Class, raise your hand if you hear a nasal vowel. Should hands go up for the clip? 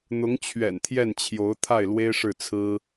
no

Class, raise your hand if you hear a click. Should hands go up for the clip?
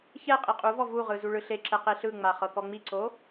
yes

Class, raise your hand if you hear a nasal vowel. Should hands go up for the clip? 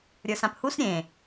yes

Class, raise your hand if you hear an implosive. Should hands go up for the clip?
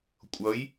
no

